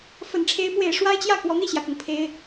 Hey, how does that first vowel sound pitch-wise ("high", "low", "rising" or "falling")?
low